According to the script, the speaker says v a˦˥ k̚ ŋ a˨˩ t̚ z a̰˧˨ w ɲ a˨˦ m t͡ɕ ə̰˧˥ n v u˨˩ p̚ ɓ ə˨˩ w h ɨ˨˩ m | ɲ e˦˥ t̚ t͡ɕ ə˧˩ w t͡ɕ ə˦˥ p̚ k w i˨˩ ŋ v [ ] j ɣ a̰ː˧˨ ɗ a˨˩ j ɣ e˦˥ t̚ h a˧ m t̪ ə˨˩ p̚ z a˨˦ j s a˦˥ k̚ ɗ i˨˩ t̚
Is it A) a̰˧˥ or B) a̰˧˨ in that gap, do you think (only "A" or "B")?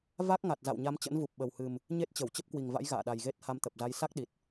A